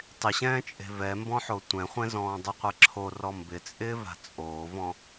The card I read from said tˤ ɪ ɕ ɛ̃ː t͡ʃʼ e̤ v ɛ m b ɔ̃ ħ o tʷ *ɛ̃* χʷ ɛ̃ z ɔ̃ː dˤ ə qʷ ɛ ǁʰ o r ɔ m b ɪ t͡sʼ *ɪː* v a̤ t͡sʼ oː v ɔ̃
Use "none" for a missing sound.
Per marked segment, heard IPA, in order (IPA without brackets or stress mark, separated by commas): ɛ̃, ɪː